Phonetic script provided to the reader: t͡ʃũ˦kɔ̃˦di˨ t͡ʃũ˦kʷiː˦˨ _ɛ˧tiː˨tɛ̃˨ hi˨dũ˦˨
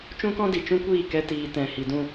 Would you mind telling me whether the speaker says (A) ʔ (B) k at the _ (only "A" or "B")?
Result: B